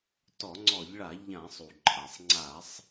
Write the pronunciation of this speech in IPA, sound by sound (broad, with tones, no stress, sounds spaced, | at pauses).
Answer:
t ɔ˧˩˧ ŋ͡ǀ ɔ˧˩˧ ʎ ɭ a˧˩˧ ʎ ã˧˩˧ sˤ u˩ ǃʼ a˩ sˤ ŋ͡ǀ a˧˩˧ sˤ